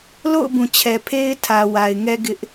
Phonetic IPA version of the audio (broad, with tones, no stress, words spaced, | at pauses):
lo̰˦˨ʊ̯ bũ˨t͡ɕʰɛ˨pʰe˦ɪ̯ tʰä˨wa˨ɪ̯ŋɛ˦ ɡɪ˦ʔ